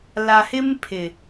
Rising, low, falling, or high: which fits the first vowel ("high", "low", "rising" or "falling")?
low